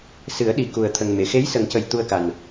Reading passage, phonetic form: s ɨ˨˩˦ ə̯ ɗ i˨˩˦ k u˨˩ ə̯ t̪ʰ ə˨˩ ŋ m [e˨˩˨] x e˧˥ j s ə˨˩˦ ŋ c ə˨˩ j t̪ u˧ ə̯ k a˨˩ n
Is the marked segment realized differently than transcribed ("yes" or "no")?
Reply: no